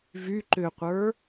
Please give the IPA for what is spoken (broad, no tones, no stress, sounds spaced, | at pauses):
v y ǃ ʏ qʷ ə˞